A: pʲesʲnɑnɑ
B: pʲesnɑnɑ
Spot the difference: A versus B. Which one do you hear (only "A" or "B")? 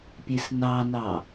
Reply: B